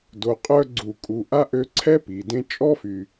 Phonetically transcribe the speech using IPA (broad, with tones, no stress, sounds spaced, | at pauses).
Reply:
d o˨ qʼ œ˦ ɡ͡ǀ u˨ kʼ u˨ ʔ a˥ ʔ ø˦ ǀʰ ɛ˥ p i˩ d ẽ˦ t͡ʃʼ ɔ˥ f y˨